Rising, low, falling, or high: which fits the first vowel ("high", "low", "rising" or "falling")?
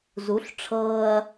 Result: rising